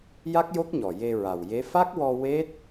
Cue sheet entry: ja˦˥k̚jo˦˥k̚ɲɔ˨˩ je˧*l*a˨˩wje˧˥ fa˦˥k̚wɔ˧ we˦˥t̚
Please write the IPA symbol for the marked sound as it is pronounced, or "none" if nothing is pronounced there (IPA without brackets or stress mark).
ɹ